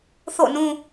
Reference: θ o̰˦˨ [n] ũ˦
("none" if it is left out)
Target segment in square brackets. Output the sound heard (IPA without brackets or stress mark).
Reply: n